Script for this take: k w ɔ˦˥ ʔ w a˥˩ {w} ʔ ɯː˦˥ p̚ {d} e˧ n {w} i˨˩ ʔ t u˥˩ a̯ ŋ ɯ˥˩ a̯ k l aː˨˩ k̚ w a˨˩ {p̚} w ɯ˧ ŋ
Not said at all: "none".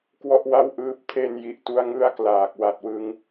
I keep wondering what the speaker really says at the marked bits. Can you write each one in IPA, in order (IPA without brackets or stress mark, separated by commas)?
w, tʰ, j, t̚